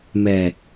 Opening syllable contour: low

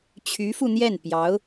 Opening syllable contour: rising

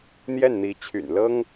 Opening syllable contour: falling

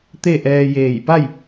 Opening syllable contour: falling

